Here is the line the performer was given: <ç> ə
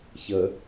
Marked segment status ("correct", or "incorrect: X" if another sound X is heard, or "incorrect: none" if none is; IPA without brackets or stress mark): correct